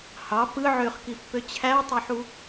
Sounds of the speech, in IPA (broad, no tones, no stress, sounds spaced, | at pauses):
h ɑ p ɯ ʕ ø χ k i pː ø t͡ɕʰ æ tˤ ø ħ u